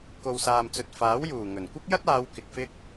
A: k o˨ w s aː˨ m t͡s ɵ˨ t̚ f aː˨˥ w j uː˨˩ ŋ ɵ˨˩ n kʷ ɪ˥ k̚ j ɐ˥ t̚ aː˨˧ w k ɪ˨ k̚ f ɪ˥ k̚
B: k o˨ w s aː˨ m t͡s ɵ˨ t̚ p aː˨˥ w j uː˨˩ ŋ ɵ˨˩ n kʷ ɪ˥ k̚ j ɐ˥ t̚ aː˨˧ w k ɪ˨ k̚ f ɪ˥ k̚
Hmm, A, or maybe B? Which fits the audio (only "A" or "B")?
A